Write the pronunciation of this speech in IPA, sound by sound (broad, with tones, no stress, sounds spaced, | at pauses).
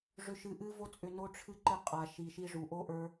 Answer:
ʐ ʏ˧ ʃ ɨ˧ ʔ ɨ˦ v o˦ t͡sʼ ʏ˧ n o˦ ʈ͡ʂʰ ɨ˦ ǃ ɨ˧ qʼ a˨ ʃ i˨ ʃ i˧ ʐ u˨ ʔ o˦ ʔ ə˞˦